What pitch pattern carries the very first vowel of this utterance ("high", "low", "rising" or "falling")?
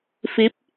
rising